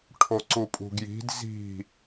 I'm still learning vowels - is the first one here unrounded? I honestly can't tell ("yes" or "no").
no